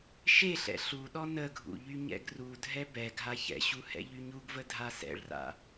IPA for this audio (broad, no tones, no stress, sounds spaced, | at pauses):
ʃ e ɬ ɛ̰ ɬ u ɗ ɔ n ə ɡʱ ṵ ʎ y ɲ ɛ̰ ɡ r u dʱ ɛ b ɛ ɡʱ a ç ɛ̰ ɕ u h ɛ̰ ʎ y ɲ u ɡ v ə dʱ a s ɛ̰ ɭ r a̰